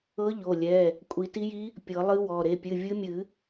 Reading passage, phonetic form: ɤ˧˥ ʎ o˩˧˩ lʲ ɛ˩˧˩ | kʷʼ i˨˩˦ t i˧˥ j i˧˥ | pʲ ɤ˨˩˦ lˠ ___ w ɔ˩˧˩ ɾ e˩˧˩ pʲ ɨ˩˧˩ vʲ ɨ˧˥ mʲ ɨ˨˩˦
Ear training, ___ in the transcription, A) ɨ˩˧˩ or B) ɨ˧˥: B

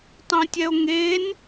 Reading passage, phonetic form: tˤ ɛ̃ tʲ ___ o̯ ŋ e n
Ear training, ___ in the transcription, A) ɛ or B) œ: A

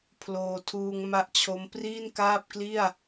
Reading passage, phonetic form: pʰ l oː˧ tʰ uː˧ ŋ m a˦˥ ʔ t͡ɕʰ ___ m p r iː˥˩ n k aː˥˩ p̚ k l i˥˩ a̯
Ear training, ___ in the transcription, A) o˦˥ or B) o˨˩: A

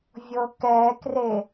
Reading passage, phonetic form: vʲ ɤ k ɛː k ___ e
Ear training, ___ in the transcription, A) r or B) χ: A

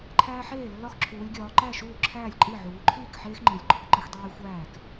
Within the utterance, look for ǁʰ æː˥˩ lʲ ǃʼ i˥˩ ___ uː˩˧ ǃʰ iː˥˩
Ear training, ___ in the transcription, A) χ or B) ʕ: B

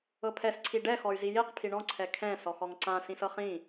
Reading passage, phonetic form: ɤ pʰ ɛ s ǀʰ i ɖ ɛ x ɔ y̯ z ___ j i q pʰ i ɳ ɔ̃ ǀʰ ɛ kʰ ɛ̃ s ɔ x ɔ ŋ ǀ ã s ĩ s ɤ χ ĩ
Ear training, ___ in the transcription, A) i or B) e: A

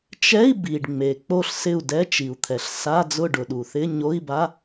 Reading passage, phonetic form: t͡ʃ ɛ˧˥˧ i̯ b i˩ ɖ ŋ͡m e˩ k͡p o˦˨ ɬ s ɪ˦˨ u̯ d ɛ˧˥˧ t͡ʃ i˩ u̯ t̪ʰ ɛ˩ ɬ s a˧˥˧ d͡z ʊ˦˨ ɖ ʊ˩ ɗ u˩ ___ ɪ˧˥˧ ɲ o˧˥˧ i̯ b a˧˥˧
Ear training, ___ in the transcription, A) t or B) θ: B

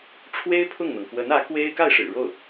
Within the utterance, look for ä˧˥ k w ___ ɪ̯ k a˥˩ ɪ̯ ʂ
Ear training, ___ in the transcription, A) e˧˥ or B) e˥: B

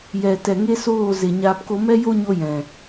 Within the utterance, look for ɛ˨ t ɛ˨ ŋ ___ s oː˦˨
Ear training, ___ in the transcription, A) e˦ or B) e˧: A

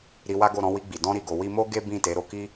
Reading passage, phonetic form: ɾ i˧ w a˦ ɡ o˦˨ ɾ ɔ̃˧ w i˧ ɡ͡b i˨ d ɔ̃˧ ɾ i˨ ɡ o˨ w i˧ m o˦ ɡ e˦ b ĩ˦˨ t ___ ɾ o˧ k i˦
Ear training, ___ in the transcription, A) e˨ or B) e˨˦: B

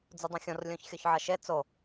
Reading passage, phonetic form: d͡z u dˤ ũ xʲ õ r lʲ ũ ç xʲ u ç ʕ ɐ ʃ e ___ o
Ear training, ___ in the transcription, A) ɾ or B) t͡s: B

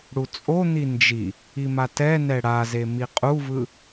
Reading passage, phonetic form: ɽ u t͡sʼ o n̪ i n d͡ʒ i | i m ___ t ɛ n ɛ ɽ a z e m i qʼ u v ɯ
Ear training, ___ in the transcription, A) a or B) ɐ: A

